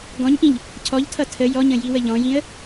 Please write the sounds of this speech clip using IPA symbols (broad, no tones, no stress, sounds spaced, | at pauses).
ɡ ɔ̃ ɲ ʔ ĩ ʎ | cʰ ɔ ʎ tʰ ʌ tʰ ə j ɔ ɲ ə̃ j i w ə ʎ ɔ̃ j ĩ ə̯